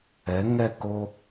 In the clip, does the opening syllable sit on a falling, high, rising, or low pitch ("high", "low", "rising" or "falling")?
rising